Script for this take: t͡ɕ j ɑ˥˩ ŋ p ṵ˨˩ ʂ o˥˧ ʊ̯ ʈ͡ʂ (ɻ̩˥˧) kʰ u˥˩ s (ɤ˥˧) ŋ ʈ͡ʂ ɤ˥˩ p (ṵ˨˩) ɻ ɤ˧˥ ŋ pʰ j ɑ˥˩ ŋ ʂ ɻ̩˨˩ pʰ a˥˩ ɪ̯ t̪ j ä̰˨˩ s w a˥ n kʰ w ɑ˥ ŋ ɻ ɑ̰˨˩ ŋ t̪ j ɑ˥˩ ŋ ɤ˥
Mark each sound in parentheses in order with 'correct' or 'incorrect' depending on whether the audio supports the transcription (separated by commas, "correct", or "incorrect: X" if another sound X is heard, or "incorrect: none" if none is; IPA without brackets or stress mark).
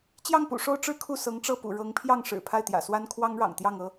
correct, incorrect: ɤ˧˥, correct